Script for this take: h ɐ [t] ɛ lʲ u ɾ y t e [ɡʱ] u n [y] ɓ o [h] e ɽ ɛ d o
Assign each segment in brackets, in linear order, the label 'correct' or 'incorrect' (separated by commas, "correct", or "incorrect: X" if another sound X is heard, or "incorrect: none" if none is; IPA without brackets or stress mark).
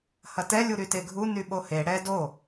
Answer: correct, correct, correct, correct